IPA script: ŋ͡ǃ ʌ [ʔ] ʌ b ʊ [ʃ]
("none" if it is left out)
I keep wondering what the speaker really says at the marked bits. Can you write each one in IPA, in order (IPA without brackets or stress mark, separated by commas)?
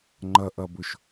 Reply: ʔ, ʃ